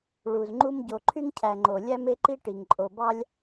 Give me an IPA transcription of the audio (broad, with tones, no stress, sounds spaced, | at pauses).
ɭ u˩ z ŋ͡ǃ u˦ m ɟ o˨ ǃʰ y˥ ŋ cʰ æ˨ ŋ͡ǃ o˩ lʲ æ˦ m e˦ ǃ i˦ ʈ i˩ ŋ ǃʼ o˨ b ɑ˥ lʲ